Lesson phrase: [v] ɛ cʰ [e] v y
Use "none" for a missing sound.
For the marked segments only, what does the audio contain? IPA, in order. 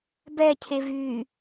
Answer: b, e

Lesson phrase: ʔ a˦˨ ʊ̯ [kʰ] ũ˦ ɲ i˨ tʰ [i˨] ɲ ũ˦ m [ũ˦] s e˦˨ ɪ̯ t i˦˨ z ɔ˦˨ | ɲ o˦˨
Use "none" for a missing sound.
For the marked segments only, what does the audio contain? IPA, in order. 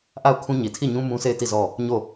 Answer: kʰ, i˦˨, ũ˦

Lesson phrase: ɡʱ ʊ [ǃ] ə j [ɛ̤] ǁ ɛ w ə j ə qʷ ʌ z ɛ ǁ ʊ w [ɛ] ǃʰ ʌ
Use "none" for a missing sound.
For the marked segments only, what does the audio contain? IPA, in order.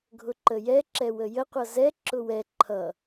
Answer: ǃ, ɛ, ɛ

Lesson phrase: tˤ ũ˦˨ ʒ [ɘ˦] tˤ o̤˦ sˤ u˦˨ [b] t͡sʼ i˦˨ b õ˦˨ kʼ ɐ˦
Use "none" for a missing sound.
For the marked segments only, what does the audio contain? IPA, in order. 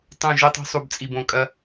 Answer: ɘ˦, b

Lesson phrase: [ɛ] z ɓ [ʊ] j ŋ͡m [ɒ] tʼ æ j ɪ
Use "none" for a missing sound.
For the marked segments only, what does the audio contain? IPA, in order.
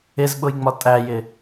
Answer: ɪ, ʊ, ɒ

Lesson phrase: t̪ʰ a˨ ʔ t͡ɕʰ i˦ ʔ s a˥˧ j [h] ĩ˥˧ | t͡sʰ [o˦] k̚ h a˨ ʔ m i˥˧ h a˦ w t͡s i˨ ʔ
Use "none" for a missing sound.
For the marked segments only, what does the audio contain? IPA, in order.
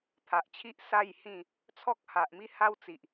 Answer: h, ɔ˦

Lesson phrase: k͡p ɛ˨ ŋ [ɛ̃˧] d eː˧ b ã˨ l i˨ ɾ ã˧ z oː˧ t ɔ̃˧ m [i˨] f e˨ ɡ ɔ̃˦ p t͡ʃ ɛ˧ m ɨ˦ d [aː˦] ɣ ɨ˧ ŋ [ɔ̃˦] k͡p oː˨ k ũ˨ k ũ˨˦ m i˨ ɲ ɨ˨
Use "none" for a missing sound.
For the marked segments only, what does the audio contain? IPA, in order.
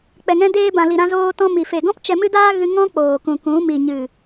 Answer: ɛ̃˧, i˨, aː˦, ɔ̃˦

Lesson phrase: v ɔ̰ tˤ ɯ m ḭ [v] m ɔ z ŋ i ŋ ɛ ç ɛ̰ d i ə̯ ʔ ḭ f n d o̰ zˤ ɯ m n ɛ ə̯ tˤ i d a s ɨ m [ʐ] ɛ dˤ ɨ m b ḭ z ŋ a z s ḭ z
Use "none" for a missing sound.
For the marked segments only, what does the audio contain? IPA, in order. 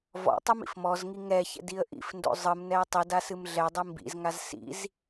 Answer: f, ɮ

